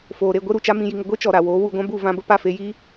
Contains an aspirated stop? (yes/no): no